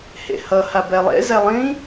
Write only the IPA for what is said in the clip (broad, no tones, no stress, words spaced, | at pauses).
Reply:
hḛhʌ habɛlˠḛ zɛlˠĩ